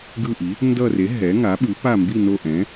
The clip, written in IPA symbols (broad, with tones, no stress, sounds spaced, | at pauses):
ɡ ɯ˦˨ ʔ i˩˥ | n d ʌ˦˨ r e˩˥ ɦ ɛ˩˥ ŋ a˩˥ ɓ ɯ˩˥ p a˦˨ m b i˦˨ n o˦˨ ʔ ɛ̃˩˥